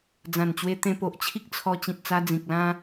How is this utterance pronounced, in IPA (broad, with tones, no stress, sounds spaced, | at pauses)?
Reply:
d͡z ã˨˩ n t͡ɕ w e˧ t̪ ẽ˧ p o˨ ʔ t͡ɕʰ i˦ k̚ t͡sʰ ɔ˧ t͡ɕ ĩ˨ t̚ t͡s a˧ d͡z ĩ˨ k̚ l ã˧